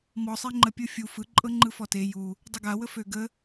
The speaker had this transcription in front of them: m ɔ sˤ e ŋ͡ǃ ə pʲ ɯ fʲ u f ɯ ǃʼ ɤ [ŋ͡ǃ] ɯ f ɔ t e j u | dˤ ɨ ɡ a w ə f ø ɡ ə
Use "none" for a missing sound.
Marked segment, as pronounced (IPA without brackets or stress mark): ŋ͡ǃ